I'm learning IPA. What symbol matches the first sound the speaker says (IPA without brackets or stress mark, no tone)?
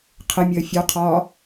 qʰ